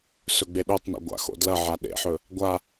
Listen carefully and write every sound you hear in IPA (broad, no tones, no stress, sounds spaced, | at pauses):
s ɵ ɡ͡b e ɗ o tˤ n ḛ ɡʷ a̰ x o̰ d l ɐ ʕ a ɗ ḛ ħ ɵ | ɡʷ a